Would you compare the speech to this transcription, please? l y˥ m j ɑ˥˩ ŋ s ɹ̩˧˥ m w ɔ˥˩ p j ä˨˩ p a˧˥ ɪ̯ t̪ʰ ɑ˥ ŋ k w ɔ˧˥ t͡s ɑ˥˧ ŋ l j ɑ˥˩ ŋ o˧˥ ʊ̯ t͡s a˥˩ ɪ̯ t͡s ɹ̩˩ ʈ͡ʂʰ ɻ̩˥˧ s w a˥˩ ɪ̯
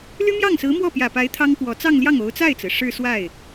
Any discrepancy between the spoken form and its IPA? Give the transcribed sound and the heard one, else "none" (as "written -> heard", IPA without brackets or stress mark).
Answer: ʈ͡ʂʰ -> ʂ